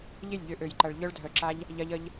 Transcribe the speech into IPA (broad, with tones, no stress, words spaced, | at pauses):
ʎɪ˦˨lʲʎʏ˨˦ʔø˨jǃɐ˨ɭ ʎœ˧ɭdʱœ˨ǁa˧ʎ | ʎɐ˧ʎə˧ʎ